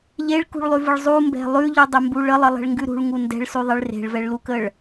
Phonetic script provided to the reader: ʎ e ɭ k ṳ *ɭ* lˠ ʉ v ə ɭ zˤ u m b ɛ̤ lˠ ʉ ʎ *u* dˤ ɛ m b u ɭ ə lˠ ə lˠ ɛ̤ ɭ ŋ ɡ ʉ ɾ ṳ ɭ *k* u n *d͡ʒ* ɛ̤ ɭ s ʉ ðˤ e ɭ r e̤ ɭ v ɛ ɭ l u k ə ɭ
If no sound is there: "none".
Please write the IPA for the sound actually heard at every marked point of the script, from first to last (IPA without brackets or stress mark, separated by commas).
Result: ɭ, ʉ, ŋ, d